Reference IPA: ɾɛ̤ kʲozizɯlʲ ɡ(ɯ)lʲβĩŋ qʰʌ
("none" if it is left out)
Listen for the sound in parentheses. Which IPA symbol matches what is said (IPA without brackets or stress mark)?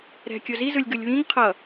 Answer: ɯ